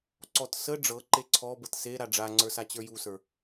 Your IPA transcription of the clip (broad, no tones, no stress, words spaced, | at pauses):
ǀɔt sə ɖ͡ʐɤ ǃeǀʰɔbɤt se ɾaɖ͡ʐaŋ͡ǀə˞ sat͡ɕə˞jusə˞